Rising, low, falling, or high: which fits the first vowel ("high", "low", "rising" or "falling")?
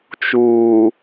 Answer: low